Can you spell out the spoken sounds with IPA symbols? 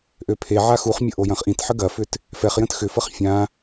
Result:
ʔ ø pʰ e ʕ a x u χ mʲ ə ʔ o j ɐ̃ χ ʔ ĩ t ħ ə ɡ ɐ f ʏ t | f ɛ χ j ə̃ t x ʏ f ə χ fʲ ã

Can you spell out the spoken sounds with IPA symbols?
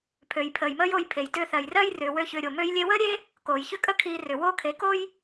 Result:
pʰ ø˨ j pʰ əː˨ j m əː˦ j o˧ j pʰ e˨ j t ʏː˧ θ ɜ˨ j r ɜ˦ j r ʏː˨ w ø˦ ç ʏː˧ ɾʲ o˨ m ø˧ j lʲ e˧ w əː˦ ɾʲ e˦ | k oː˨ j ç ʏ˦ kʼ ə˦ kʰ iː˧ r ʏ˨ w oː˦ kʰ e˨˦ k o˦ j

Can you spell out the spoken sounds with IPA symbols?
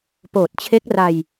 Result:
p oː˨˩ t̚ t͡ɕʰ e˦˥ k̚ r a˧ j

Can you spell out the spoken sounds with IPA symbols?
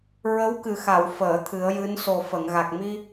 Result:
ɹ ə˧˥ w k ɨ˨˩ x a˨˩˨ w f əː˨˩˨ t̪ʰ ɨ˨˩˦ ə̯ j ɨ˧˥ n s o˨˩ f ə˨˩˨ ŋ ɣ a˨˩ k̚ m i˧

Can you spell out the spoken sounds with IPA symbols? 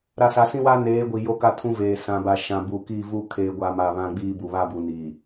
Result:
ɾ a˨ s a˨ s ĩ˦ w a˦ n eː˨˦ ɡʷ i˨ j o˦ k a˦ tʰ ũ˦ v eː˨ s ã˨ b a˨ ʃ ã˨ b u˨ k i˦˨ v u˦ kʰ eː˦ ɡʷ a˦ m a˦˨ β ã˦ ɡ͡b iː˦ b u˨ β a˦˨ b u˨ n i˨

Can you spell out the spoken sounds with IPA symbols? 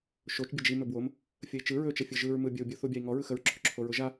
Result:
ʃ o t͡ʃ bʲ ə d͡ʒ i m ɵ b w o m | fʲ ə i̯ t͡ʃ ɯ ɹ ɵ t͡ʃ ə fʲ ɯ ʒ ɯ ɹ m ɯ bʲ ə u̯ bʲ u θ u bʲ a i̯ ŋ ɔ ɹ ɯ x ə ɹ ǁʰ ɵ ǁʰ o ɹ ʊ ʒ a

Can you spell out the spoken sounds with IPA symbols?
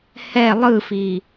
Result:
h ɛ lˠ ɯ f i

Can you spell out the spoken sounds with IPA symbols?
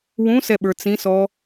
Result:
w ũ s ɛ ɓ ə˞ t͡s ĩ s ɔ

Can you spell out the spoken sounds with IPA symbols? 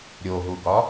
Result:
ɾʲ o ɦ u ɡ ɒ

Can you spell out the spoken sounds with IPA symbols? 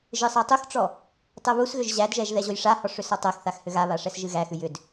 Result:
ʒ ɨ sˤ a tˤ u x ʈ͡ʂ ɔ | tˤ ɛ β u s ɣ ʏ ʒ ʑ æ d ʒ ɛ ʒ ð ɛ ʑ o j ʂ a h ɔ ʂ ʏ s ɔ tˤ ɛ x θ a x h ʏ ɣ a β a ʂ ɛ s ʒ ɨ ɣ æ x ʉ j ʏ d

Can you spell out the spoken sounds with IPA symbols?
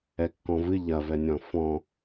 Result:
ɛ kː ɔ̃ v ɨ ʎ ɐ v ɛ nʲ ɔ̃ f ɔ̃

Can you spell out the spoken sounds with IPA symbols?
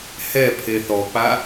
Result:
h ɛ pʰ e θ ɔ k͡p a

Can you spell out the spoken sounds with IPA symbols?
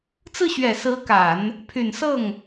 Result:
t͡s ɹ̩˥˩ ɕ ɥ ɛ˨˩ s ɹ̩˧˥ k a˨˩˦ n | pʰ y˨˩ n s ɤ˥˩ ŋ

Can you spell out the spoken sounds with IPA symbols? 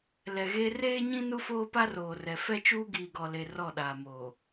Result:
l ɛ˨ ɣ e˦ r eː˦ ɲ ĩ˦ n u˦ f oː˦ p a˦ r oː˨ r ɛ˨ f ɛ˦ t͡ʃ uː˦ ɡ iː˨ ɡ ɔ˨ l e˨ r ɔ˦˨ ɗ aː˨ m oː˨

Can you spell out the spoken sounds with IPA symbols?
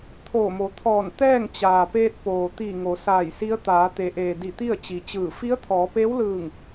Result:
t̪ʰ oː˧˩ m o˩˧ t̪ʰ ɔː˧˩ n t̪ ɛː˥˨ ŋ t͡ɕ aː˩ p eː˧ t̚ p oː˩ t̪ i˧˩ ŋ o˩˧ s aː˧˩ j s i˧˥ ə̯ t̪ aː˩˧ t̪ e˩˧ ʔ eː˩ d i˧˩ t̪ i˥˨ ə̯ t͡ɕ i˩ t͡ɕ ɯː˧˩ f i˧˥ ə̯ t̪ʰ ɔː˩˧ p eː˧˥ w l ɯː˧˩ ŋ

